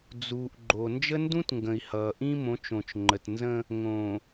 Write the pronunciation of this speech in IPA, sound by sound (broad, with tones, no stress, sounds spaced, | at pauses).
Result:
d͡z uː˨ ʔ ɡ͡ǃ o˨ n d͡ʒ ə˦ n d ũ˦ t ŋ ɡ ə̃˨ i̯ h ʌː˨ ʔ ĩ˦ m õ˨˦ t͡ʃ õ˨ t͡ʃ ŋ͡ǃ ə˨ t n z ə̃˦ | ŋ õ˨